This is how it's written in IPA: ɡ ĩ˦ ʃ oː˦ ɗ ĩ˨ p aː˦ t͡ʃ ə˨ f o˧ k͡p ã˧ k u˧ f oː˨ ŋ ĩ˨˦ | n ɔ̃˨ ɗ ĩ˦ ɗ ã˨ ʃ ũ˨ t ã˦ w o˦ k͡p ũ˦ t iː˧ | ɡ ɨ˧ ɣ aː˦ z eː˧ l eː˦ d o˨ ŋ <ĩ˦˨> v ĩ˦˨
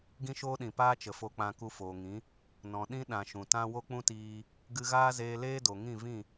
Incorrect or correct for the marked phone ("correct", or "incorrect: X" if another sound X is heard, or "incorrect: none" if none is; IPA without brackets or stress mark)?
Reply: correct